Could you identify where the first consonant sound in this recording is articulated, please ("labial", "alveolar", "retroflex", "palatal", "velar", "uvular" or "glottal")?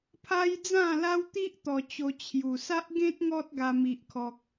labial